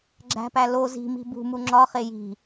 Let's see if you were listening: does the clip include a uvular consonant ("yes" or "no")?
yes